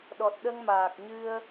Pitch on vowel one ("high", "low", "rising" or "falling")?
low